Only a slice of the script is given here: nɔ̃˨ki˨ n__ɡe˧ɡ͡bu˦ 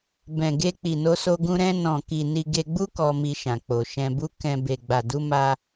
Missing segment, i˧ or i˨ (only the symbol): i˧